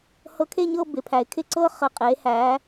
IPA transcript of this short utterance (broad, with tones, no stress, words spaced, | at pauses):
hɤ˧˥kʰe˥˧ɲɤ˥˧ bɪ˩˧pʰæ˩˧ɪ̯kʰɪ˥˧ǀɤ˥˧ χɘ˨˩qʼeː˩˧hæ˩˧